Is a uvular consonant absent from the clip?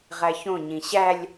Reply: no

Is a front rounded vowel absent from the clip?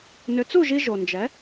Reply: no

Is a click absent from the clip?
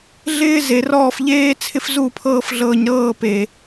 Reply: yes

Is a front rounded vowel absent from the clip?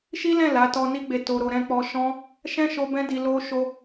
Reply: yes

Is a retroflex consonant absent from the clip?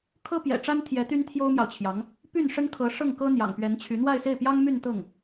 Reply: no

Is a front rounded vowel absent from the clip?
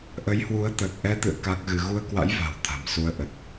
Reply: yes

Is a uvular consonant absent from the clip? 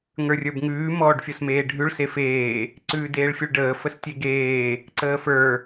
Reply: yes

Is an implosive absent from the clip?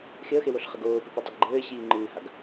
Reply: yes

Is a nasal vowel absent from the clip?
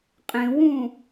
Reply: no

